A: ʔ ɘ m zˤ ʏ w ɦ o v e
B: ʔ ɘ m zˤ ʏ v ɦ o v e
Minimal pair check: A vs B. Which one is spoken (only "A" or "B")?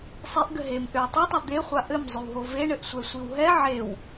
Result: A